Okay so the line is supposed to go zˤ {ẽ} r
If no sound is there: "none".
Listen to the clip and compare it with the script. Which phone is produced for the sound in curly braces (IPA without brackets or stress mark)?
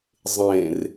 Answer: ẽ